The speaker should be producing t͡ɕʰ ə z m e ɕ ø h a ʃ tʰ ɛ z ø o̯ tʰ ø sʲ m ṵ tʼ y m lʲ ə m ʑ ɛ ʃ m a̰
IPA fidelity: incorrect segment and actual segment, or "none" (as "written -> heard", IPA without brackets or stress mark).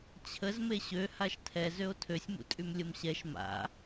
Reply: ʑ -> ɕ